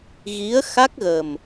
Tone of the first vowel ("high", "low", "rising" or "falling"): rising